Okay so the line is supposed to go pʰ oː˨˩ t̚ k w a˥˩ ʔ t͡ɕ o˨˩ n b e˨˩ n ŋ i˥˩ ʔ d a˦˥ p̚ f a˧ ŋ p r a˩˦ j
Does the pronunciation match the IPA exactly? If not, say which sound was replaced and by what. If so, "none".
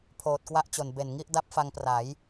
none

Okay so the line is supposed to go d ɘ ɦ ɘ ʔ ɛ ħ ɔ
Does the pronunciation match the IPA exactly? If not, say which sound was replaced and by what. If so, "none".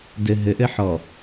ɛ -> ɘ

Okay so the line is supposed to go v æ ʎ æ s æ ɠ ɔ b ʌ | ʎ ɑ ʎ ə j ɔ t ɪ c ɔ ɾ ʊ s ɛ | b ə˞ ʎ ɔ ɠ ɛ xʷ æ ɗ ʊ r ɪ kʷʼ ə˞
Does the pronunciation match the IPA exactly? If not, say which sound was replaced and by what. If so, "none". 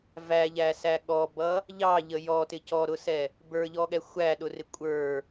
none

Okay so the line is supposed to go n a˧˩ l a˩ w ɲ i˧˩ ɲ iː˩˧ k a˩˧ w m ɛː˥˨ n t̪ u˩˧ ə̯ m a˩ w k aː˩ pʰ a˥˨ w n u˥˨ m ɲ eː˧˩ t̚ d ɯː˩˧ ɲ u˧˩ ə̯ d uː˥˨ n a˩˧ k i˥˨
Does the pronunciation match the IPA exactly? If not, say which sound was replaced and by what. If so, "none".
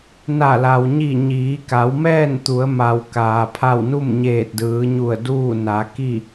none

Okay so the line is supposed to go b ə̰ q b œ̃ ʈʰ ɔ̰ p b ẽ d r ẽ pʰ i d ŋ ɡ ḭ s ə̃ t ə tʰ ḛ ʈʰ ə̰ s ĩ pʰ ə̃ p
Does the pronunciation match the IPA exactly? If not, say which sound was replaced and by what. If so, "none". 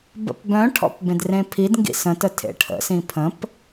q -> p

